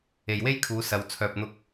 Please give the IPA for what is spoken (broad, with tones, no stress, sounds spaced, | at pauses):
e˨ j w e˥ j kʰ uː˨˧ s ɐ˨˧ w t͡sʰ œː˨ p̚ n̪ ʊ˧ k̚